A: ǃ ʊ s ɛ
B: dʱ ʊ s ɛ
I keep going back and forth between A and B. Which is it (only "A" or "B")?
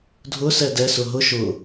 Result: B